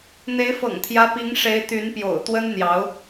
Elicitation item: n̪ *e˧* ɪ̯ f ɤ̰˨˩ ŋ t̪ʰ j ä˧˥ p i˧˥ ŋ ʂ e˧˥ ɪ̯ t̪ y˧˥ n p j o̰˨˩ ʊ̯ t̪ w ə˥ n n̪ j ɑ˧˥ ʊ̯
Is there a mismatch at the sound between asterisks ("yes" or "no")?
yes